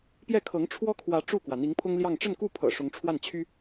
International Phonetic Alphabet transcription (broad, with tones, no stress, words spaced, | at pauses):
pjɛ˥˩kʰɤ˧˥ŋ ʈ͡ʂʰwɔ˥kʰwä˧˥ ʈ͡ʂu˥˩kwä˩ n̪i˧˥ŋpʰʊ˥ŋljɑ˥˧ŋ ʈ͡ʂə˥˧nku˥˩pʰɤ̰˨˩ ʂʊ˧˥ŋʈ͡ʂʰwa˥˩nt͡ɕʰy˥